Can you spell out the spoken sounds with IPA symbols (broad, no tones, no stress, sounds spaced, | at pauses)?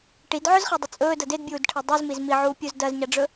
ʈ i d ʕ ɵ z χ i dˤ ɵ t͡sʼ ɵː d ɐ d e d bʲ uː d ʈʰ e dˤ e z m i z m i ʕ uː pʲ u z d ɐ z ɲ a ɖ͡ʐ ɵ